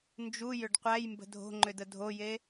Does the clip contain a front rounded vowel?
yes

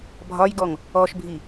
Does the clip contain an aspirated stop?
no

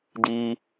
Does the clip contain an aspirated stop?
no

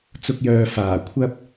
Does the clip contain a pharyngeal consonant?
no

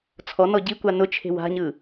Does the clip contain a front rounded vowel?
no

